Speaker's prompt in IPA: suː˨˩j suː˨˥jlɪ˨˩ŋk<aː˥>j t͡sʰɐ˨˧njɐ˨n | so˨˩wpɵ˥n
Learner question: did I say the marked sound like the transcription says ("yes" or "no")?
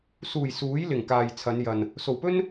no